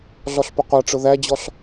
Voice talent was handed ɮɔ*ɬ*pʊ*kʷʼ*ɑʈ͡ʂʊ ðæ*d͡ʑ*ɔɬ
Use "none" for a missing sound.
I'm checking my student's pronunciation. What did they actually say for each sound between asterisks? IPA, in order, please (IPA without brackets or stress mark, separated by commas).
ɬ, qʷ, d͡ʑ